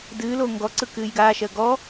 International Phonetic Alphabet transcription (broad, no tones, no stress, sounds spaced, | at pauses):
d ɨː l oː ŋ ɡ ɔ ǀ ɯ k ɨː j ɡ aː ʃ ɜ ɡ ɔ